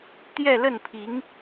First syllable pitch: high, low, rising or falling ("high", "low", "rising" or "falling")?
falling